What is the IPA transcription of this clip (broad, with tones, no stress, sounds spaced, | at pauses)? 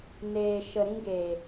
n eː˨ ʃ ə˨ ɾ ĩ˦ ɡ e˨